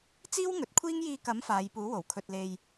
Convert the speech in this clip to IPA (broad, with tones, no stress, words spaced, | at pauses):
t͡siː˥wŋɵ˨˥t̚kʷʰiː˥ŋ jiː˧kɐ˨˥m faː˨˧jpuː˨˥wo˨˩w kʰɵ˧t̚le˧j